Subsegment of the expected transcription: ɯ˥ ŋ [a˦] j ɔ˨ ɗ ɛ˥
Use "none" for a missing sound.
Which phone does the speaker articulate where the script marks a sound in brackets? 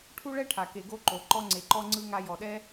a˦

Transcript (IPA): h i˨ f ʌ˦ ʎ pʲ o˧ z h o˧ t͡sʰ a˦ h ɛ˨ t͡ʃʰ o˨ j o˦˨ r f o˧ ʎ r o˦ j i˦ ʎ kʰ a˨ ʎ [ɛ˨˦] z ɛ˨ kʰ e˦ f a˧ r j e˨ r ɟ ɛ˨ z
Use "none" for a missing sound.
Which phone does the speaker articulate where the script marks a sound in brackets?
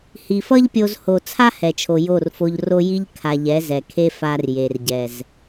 ɛ˨˦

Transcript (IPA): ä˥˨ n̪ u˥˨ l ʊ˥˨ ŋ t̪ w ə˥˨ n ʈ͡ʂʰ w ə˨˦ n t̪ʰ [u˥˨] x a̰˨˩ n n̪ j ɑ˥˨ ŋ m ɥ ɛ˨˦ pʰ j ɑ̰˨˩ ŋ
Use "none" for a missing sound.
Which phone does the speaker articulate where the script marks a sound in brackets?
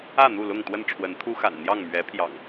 u˦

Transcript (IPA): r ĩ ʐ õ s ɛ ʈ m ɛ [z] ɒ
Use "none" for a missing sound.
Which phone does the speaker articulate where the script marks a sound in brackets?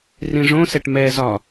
z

